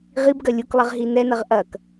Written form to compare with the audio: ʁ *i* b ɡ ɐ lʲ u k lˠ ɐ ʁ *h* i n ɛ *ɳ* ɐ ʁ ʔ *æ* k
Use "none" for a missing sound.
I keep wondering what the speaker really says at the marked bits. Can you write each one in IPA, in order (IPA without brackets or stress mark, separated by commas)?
i, ɦ, n, ɐ